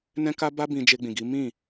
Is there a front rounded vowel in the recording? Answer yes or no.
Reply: no